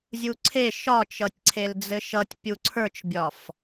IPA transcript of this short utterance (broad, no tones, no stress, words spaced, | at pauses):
zʲuǀʰe ʃɒt͡ʃʌtʲǀʰel d͡zɘʃʌtʲ pʲuǀʰə˞t͡ʃbʲɒf